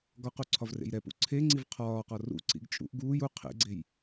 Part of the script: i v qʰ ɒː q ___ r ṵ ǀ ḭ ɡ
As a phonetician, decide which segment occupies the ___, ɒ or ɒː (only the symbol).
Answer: ɒ